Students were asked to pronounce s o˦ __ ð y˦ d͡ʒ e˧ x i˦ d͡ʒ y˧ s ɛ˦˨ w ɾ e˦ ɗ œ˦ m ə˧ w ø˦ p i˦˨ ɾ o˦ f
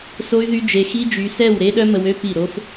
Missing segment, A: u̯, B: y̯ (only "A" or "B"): B